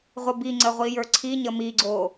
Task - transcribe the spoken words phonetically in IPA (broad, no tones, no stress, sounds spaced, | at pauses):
ʁʷ ə b i ŋ͡ǀ ə ʁʷ i j ə˞ ǀʰ i ɲ ə m i ɡ͡ǀ o